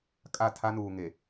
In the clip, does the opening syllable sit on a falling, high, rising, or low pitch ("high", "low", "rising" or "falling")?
falling